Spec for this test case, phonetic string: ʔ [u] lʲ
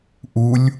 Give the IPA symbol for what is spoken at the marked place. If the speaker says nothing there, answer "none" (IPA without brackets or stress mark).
u